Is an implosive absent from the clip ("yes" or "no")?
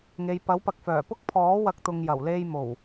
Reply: yes